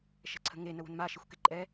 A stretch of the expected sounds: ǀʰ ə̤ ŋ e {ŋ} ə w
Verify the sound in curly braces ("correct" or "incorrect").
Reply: incorrect